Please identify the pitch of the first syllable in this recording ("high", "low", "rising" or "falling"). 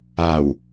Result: low